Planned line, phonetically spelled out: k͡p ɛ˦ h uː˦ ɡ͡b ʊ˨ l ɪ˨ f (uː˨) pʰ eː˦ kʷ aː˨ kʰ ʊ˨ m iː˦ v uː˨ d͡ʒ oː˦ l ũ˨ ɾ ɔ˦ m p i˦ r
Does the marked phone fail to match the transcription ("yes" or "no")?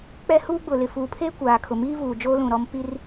no